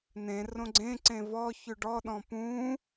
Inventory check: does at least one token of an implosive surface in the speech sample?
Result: yes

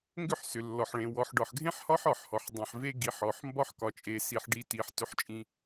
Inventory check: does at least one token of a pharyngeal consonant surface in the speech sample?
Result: yes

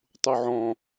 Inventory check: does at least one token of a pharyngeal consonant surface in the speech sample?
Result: yes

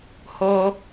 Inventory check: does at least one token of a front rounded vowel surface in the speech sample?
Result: no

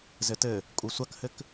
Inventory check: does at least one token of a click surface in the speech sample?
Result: no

